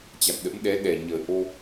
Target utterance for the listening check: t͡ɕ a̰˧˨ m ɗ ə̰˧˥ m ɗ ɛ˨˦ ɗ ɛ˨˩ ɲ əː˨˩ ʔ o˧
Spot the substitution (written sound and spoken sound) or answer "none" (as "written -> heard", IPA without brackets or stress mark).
none